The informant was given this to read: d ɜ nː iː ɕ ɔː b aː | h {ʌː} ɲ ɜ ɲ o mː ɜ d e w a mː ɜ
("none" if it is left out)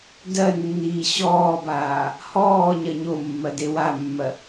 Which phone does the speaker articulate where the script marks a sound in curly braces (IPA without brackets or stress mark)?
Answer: ɔː